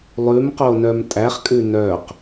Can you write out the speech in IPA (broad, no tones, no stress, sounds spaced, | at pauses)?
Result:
lˠ ʉ m q o n œ m tʼ æ χ kʼ ʉ n œ q